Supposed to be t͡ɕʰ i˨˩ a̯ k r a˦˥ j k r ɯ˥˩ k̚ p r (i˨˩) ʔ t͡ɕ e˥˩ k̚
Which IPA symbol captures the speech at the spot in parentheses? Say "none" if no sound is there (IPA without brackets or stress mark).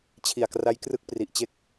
i˨˩